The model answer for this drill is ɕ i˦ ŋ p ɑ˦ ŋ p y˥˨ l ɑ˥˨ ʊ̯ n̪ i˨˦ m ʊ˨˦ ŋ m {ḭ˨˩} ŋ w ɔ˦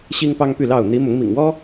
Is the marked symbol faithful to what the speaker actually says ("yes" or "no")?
yes